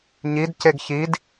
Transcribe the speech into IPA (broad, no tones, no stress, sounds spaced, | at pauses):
ɲ i d c e ɡ ç i d